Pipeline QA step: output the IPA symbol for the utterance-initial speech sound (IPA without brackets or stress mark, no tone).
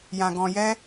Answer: j